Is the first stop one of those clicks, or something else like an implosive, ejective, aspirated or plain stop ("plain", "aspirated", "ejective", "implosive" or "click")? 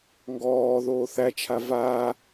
plain